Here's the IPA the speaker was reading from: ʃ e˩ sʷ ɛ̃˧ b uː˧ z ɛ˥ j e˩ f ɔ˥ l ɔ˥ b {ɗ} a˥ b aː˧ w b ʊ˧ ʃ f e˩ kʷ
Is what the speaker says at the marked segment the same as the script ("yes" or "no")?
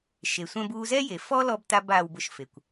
no